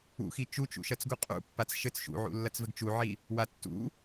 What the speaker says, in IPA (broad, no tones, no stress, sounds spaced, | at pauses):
ṵ x i t͡ʃ u t͡ʃ ṵ ʃ ɐ t͡s ɡ u qʼ ṵ pː a t͡s ʃ ɘ t͡s ʃ ṵ ʕ ṵ lː ɐ t͡s v ɘ ɡ t͡ʃ u ʕ i | w a tː ṵ